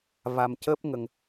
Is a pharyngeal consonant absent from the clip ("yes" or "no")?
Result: yes